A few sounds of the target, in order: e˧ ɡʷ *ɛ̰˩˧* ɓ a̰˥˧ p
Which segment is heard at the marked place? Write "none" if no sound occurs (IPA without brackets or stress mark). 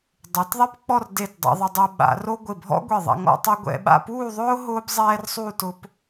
ɛ̰˧